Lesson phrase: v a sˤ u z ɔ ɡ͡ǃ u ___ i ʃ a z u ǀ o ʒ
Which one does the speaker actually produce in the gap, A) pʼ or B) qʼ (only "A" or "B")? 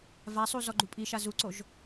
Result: A